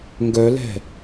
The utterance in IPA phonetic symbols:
ŋ ɡ œ l ɛ̤

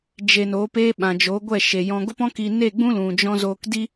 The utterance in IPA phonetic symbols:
d͡ʒ e˧ n oː˨˦ p e˦ ɓ ã˨ d͡ʒ o˨˦ ɡʷ ɛ˦˨ ʃ e˨ j ɔ̃˧ ɡ o˦ p ɔ̃˦ k i˧ n e˦˨ ɡ͡b ũ˦ l ũ˨ d͡ʒ ɔ̃˦ z oː˧ k d i˦

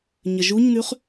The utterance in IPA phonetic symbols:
ɲ ə ʒ u ɲ n̪ ʉ χ

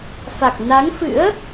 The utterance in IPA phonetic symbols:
f a˨˩ k̚ n a˨˦ ŋ f ɨ̰˧˥ ə̯

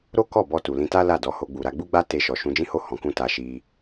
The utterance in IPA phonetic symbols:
ɾ o˦ k ɔ˦˨ b ɔ˧ t u˨ l ĩ˧ t a˦ l a˦˨ d ɔ˨˦ h o˧ ɡ͡b u˨ ɾ a˧ ɡ͡b u˦ ɡ͡b a˦ t e˧ ʃ ɔ˨ ʃ ũ˧ d͡ʒ ĩ˦ h o˦˨ h ɔ̃˨˦ k ũ˦ t a˧ ʃ i˧

